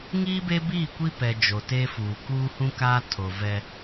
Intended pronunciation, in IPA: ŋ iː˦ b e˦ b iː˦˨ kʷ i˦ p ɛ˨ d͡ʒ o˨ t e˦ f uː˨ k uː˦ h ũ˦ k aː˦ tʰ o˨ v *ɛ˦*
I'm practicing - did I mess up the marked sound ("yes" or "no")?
no